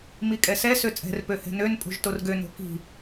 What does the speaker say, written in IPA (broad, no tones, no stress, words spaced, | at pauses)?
mikʼɛsɛ søt͡sʼɛ̤r pøhɛ̤nøn pʼo̤ʒtorɡø no̤ki̤